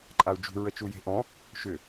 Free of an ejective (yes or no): no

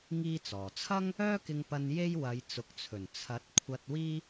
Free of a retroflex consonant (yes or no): yes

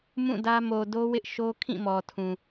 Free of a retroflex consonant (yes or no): yes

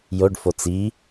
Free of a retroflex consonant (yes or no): no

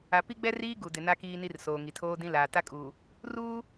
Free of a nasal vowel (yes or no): no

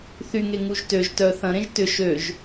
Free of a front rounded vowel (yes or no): no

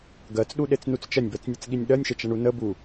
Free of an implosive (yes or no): no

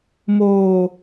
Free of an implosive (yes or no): yes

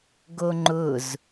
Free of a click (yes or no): no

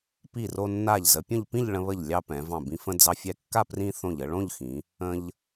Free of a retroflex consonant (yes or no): no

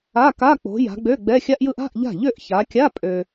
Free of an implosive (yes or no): yes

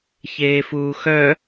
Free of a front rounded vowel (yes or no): no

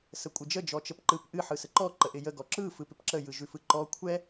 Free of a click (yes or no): no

